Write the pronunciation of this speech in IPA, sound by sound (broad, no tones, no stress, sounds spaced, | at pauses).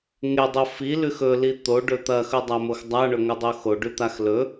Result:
ŋ e dˤ o f i l ʉ x ɵ l i t̪ o ɖ ɵ t̪ ɐ x ɵ dˤ a m o x dˤ a ɳ ɵ ŋ ɵ dˤ o x o ɖ ʉ t̪ a x l ɵ